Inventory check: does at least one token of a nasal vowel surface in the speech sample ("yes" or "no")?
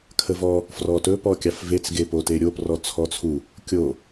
no